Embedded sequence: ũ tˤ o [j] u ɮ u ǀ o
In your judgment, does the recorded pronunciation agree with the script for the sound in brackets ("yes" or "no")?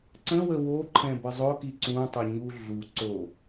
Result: no